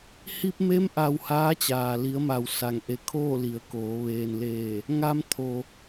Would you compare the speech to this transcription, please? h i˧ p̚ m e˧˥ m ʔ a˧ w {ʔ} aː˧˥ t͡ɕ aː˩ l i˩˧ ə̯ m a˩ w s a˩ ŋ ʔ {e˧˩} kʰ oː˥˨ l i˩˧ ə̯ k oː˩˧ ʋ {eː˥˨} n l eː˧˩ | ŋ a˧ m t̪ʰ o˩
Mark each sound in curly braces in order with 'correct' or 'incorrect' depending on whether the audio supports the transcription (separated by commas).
incorrect, correct, incorrect